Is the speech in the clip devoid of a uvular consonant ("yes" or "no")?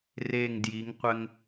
no